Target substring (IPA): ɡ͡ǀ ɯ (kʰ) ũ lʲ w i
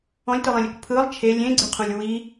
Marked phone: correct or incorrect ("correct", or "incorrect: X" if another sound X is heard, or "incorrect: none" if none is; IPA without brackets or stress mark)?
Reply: incorrect: qʰ